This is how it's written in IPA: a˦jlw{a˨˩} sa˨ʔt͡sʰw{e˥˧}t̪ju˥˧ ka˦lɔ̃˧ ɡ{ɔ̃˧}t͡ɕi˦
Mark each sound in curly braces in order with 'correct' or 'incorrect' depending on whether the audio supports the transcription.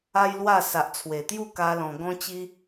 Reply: incorrect: a˥˧, incorrect: e˨˩, incorrect: ɔ̃˦

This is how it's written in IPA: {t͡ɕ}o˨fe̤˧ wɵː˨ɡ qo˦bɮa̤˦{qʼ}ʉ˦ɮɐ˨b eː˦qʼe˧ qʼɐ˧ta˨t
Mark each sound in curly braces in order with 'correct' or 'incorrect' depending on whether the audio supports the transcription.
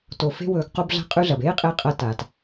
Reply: incorrect: t, correct

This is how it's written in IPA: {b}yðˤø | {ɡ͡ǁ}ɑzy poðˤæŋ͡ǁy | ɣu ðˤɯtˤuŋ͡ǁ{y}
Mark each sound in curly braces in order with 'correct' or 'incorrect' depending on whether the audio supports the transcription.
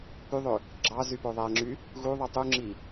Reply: incorrect: p, correct, incorrect: i

